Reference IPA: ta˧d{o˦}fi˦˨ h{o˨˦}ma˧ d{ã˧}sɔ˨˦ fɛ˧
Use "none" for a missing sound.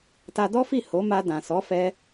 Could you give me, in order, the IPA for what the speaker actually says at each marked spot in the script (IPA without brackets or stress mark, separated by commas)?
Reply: ɔ˦, o˨˦, ã˨